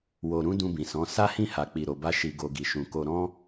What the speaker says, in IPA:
w o˨ ɾ ũ˨˦ d ũ˧ b ĩ˨ s ɔ̃˨˦ s a˦ h ĩ˦˨ h a˨ k͡p i˨ ɾ o˨ b a˧ ʃ i˨ ɡ o˨ ɡ i˨ ʃ ũ˨ k o˨ ɾ ɔ̃˧

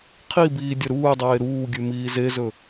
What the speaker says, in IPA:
qʰ i b iː dʲ ɐ ɾ uː dˤ eː ɾ uː ɡʲ ʉ m iː z e z ɵ

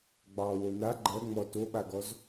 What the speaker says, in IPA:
ɡ͡b ɑ w o n a ɡ͡ǃ ɜ ŋ͡m ɔ t o ɓ a ɡ ɔ z

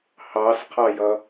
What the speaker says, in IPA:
h ɑ s qʰ ɑ j ʌ

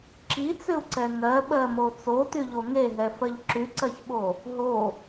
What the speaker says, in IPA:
ǁ i t͡s ʏ u̯ ǀ ɛ ŋ ɜ ɓ ɜ m o t͡s o t y ʎ o ŋ e ɦ ɛ f ɜ ʎ ǁ y ǀ ɜ ç ɓ o | ɦ o

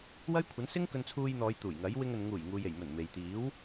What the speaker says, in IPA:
w ɐ˥ j kʷʰ ɐ˨˥ n s ɪ˥ ŋ k ɵ˧ n t͡sʰ uː˧ j n̪ ɔː˨˧ j t̪ uː˨˩ j ŋ ɐ˨˥ j w ɪ˧ ŋ ɵ˨ n ŋ uː˨˩ j ŋ uː˨ j e˨˩ j m ɵ˨˩ n m e˨ j t̪ iː˨˥ w

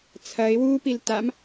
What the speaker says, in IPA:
t͡sʰ ɐ ɪ̯ w uː p i l t a m

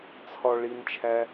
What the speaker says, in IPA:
t͡sʰ ɒ ɭ i n t͡ʃʰ æ

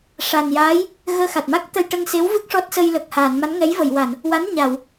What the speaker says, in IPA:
ʂ a˨˩ n j aː˧˥ j | ɣ əː˧ x a˨˩ t̚ m a˦˥ k̚ t̪ ə˧ j ʈ ə˧ ŋ s e˧˥ w v ɨ˦˥ k̚ ʂ ɔ˦˥ t̚ s ə˧ j l əː˨˩ k̚ h aː˨˩˨ n m a˧˥ n ŋ ɛ˧˥ j v ə˨˩˨ j w a˨˩˨ n | w a˧˥ n ɲ a˨˩˨ w

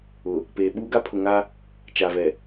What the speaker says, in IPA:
ʊ˨ | p eː˨ ɓ uː˦ ɡ a˦ pʰ ʊ˨ ŋ a˦ | t͡ʃ a˨ v ɛ˨

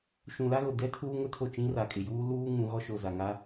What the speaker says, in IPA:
ʃ ũ˨ l a˦ ɣ o˨ d ɛ˦ tʰ uː˦ ŋ ʊ˦ tʰ o˦˨ t͡ʃ ĩ˦ r a˨ kʼ ɪ˨ j uː˦ l uː˦ ŋ ũ˨˦ ɣ ɔ˦ ʃ o˨ z a˨ ŋ a˦

